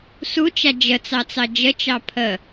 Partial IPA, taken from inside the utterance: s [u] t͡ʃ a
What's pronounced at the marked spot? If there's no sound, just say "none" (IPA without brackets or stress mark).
u